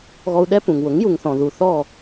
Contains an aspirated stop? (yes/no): no